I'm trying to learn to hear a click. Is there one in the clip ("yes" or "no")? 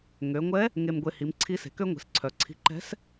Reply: yes